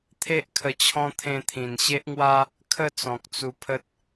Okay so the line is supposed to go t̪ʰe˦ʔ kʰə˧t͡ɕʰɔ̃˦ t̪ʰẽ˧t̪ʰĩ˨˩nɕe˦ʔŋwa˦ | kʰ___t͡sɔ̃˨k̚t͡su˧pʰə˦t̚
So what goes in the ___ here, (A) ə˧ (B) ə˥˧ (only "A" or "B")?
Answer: B